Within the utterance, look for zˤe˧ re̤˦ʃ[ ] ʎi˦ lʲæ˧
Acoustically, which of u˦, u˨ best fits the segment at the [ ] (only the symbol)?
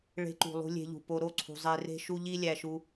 u˦